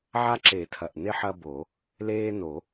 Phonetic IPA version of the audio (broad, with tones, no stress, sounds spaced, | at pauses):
ʕ a˦ ǁ e˨˩˦ tʰ ɐ˨˩ ʔ n e˦ ħ ɐ˦ b o˨˩˦ | l eː˦ n o˨˩˦